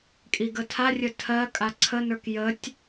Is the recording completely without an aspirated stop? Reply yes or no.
no